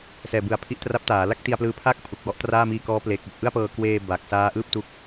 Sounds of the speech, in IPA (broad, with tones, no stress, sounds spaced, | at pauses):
s ɛː˨˩ b ɯ˩˦ a̯ pʰ i˦˥ ʔ t r a˦˥ p̚ t aː˩˦ l a˥˩ k̚ t i˧ a̯ p l ɯː˦˥ pʰ aː˥˩ k̚ pʰ u˨˩ k̚ w ɔ˦˥ ʔ t r aː˥˩ m iː˧ k ɔː˦˥ p l eː˨˩ k̚ w o˨˩ k̚ ʔ ɯ˥˩ a̯ p ɤː˧ k w eː˧ b a˨˩ k̚ s aː˦˥ ʔ ɯː˥˩ p̚ t u˥˩ k̚